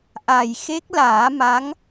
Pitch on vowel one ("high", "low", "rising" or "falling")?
low